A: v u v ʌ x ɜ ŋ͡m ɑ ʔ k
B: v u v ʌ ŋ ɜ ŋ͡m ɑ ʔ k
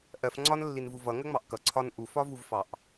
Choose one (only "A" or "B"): B